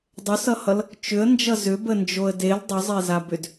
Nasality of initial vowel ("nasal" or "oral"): oral